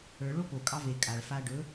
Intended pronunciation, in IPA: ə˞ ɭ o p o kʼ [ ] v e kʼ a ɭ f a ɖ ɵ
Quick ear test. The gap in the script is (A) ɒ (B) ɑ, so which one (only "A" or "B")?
B